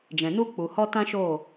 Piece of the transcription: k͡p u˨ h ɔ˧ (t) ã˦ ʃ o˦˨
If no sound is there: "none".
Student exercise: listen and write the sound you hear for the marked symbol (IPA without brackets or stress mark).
t